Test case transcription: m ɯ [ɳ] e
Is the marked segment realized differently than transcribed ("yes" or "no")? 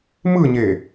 yes